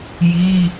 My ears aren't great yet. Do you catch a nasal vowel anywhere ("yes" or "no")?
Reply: no